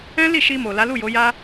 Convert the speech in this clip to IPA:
ɛ̃˦li˦˨ ʃi˧mo˨ la˨˦lu˦˨jo˨˦ja˦

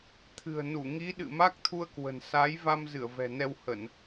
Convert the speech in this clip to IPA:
t̪ʰɨ̤˨˩ə̯nu˧˩ ŋi˨˦ɗɨ̰˧˨ ma˦˥k̚t̪ʰu˧ə̯kwə̤˨˩n sa˨˦j va˧mzɨ˧˩ə̯ vɛ̤˨˩ nɛ˧whə˧˩˨n

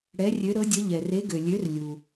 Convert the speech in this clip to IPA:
ɽɛ˨˥rʲø˨˥ɾɤ˨˥dʲə˨˥ ʎɛ˨re˨˥ɡø˨ lʲø˨˥rlʲu˨

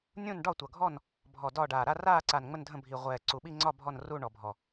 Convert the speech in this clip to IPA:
nʲũ˦˨nɖɒ˦˨tʷʌ˨˩ɡʱɔ˦˨n | bʱɔ˨˩ dɒ˦˨ɖaː˨˩ ɾa˦˨raː˦˨ǀa˨˩n ŋ͡mə˦˨ndʱə̃˦˨bʱi˨˩ ʁʷɛː˨˩ǀu˨˩ ɓi˦˨ŋ͡ǀɒ˦˨ bʱɔ˦˨nru˦˨ɳɔ˨˩bʱɔ˨˩

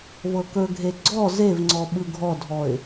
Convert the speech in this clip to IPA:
vɤkɵɡʱe ɡ͡ǀɔ zevŋ͡ǀɔ ɓɯɡʱɔdʱɔɪ̯

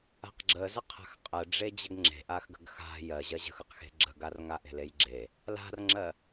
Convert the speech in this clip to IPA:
a̤qɡ͡ǁəzə qʰa̤xqʼɜɖ͡ʐe d͡ʑəɡŋ͡ǁe̤ ʔaxɡə̤ɡxa̤ jɜ ʑɜʑə̤xəqxe̤ ɡ͡ǁə̤ɡarŋaʔe̤ lejɡ͡ǁe | la̤rŋ͡ǁɜ

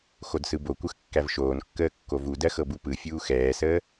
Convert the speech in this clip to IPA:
xodsɯbokʷɯx kːævʃoːnkːəː kːovudɜ xɤbupɯfʲuː xɛːsəː

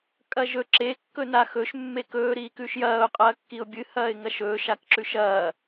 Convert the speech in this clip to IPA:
kʼɐʒɵ ǁe kːɵnaxɵʃ mːekɵː ɾiːkʉʃjɐːʊ̯ qʼɐːkːiʊ̯bʲɨ hɐːɪ̯ŋɐʃɵːʃ akǁʉʃɐː

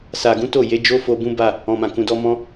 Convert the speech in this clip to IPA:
sa˨ɡũ˨˦ to˦˨je˨˦d͡ʒo˦fo˧ bũ˦ba˦˨ | ɔ̃˨mã˨kũ˨dɔ˧ mɔ̃˧

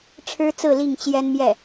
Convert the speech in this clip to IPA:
ʈ͡ʂʰɻ̩˥t͡sɹ̩˥˧ li˥˩ŋt͡ɕjɛ˥nmjɛ˥˩

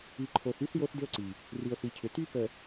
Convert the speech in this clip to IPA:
i˨ ǃʰo˨θy˦θ jo˦θdʏ˦o̯ǀi˨ | ri˨o̯θi˨cʰʏ˨ ty˦ pə˨

